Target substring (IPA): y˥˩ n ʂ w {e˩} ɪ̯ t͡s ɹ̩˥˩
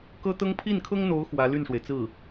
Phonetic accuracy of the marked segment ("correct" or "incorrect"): correct